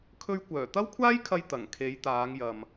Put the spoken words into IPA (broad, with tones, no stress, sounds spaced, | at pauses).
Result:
kʰ ɵ˧ ɥ kʷ œː˨˩ t̪ ɐ˥ w kʷʰ aː˥ j kʰ ɐ˧ j t̪ ɐ˨˩ ŋ kʰ e˨˧ j t̪ aː˨˧ ŋ j ɐ˨ m